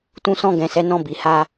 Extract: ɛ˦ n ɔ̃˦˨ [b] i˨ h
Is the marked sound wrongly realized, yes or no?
no